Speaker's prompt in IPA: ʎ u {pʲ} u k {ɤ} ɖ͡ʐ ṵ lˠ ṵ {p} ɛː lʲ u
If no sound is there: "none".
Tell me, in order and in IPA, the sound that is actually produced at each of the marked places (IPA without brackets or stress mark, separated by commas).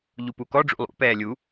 p, ɔ, p